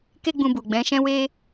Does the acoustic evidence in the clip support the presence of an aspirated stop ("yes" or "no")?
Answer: no